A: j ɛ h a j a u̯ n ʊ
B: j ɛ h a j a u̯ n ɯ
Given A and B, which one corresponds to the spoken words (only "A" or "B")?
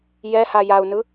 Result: B